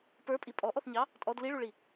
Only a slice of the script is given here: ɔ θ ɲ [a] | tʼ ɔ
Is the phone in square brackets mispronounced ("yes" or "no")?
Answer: yes